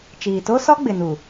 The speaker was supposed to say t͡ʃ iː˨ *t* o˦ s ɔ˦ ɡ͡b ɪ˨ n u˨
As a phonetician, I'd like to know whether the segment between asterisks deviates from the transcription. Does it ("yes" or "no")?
no